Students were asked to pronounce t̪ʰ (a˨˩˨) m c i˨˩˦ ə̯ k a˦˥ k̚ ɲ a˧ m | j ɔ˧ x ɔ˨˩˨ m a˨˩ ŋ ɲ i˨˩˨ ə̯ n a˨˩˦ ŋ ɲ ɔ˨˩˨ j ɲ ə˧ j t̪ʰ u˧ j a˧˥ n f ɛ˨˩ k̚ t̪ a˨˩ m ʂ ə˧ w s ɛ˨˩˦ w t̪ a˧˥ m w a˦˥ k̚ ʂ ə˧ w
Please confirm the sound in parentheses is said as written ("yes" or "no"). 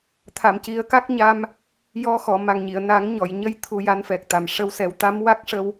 yes